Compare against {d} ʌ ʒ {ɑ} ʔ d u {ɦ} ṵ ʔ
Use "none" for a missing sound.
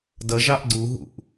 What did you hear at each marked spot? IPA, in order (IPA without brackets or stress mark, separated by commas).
d, ɑ, ɦ